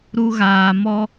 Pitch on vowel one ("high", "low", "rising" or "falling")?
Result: high